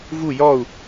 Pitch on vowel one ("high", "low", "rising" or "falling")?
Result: falling